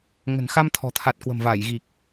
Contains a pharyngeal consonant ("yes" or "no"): no